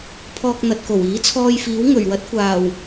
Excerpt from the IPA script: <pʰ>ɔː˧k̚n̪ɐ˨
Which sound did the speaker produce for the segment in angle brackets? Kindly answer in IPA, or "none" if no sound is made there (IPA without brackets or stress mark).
pʰ